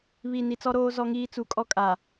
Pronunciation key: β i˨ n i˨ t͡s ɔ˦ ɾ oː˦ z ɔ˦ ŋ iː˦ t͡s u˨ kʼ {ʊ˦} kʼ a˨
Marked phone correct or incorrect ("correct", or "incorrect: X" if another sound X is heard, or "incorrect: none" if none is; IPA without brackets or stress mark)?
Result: incorrect: ɔ˦